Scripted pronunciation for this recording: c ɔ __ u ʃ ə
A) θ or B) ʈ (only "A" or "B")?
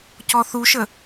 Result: A